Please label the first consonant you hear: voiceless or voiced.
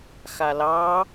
voiceless